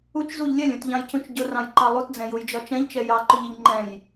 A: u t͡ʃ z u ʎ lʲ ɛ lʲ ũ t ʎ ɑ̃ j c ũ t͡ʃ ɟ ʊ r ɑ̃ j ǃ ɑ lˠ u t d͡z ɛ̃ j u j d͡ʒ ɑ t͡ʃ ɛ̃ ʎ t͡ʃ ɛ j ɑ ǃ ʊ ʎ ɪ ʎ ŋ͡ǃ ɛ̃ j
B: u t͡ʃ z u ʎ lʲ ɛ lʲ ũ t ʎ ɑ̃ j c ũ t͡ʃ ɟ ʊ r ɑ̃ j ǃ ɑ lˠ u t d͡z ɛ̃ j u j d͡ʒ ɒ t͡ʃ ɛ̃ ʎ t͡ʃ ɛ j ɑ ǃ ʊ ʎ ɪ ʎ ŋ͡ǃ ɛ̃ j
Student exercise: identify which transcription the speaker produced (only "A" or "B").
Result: B